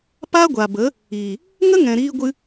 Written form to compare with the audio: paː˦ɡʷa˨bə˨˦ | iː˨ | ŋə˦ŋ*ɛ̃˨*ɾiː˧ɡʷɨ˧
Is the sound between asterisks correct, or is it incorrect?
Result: correct